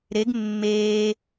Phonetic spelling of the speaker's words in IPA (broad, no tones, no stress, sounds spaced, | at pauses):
ɾ e ɡ mː eː